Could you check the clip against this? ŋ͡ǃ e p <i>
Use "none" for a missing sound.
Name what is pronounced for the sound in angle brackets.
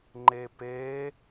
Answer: e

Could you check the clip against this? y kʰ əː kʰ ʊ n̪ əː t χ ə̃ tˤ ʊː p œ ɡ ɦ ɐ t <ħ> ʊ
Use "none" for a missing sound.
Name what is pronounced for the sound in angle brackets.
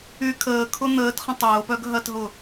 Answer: ɦ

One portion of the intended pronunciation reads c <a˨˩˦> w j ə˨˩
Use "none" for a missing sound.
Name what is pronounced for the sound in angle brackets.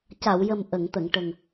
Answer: a˨˩˨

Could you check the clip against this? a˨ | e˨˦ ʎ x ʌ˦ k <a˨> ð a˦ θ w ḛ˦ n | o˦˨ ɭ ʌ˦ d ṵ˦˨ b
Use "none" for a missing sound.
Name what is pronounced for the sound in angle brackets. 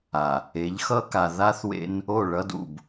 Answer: a˨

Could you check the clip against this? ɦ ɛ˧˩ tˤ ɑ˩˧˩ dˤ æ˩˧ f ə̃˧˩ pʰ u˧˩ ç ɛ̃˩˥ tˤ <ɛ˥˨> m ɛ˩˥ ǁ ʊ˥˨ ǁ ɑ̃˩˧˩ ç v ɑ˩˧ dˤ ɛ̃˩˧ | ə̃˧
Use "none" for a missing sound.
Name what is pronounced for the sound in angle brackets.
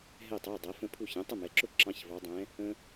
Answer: ə˥˨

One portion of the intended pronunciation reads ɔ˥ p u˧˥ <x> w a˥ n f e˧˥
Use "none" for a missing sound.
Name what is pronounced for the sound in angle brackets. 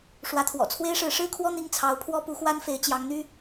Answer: x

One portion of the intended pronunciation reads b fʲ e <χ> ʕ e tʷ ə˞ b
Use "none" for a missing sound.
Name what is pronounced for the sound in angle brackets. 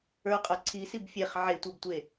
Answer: χ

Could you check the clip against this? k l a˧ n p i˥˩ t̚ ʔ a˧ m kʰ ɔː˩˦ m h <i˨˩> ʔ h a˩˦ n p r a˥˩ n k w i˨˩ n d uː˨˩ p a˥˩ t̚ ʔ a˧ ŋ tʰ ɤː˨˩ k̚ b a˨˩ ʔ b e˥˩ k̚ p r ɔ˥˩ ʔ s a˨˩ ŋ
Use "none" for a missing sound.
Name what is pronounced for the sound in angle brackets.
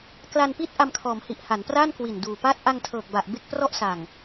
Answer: i˨˩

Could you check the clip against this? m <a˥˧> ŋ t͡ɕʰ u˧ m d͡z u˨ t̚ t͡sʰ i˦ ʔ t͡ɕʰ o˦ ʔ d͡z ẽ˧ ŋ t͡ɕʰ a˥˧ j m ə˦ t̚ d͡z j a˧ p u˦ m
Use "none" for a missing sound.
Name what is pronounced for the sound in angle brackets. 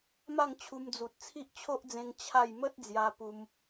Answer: a˥˧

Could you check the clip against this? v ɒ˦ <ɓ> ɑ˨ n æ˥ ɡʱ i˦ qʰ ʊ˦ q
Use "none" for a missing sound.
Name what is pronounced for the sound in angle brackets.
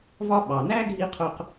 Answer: ɓ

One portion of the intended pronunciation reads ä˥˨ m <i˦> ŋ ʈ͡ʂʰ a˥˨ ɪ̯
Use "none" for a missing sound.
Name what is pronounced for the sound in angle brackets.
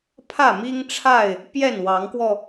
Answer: i˦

